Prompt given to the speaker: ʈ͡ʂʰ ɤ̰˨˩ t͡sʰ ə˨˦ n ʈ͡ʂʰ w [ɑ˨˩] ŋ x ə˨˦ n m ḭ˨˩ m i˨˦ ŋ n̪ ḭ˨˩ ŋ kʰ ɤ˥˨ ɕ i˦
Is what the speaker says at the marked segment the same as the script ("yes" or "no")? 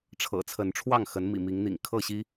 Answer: no